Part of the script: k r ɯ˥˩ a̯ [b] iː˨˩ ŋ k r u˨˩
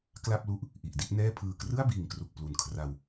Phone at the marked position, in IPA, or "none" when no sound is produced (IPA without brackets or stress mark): b